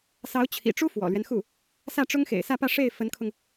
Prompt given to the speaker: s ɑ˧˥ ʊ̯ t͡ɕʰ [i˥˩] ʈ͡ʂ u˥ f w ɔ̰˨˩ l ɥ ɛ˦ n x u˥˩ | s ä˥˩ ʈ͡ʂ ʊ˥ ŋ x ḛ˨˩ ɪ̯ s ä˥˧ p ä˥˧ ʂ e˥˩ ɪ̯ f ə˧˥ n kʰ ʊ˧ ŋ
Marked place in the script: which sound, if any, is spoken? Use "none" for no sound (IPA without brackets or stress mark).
ḭ˨˩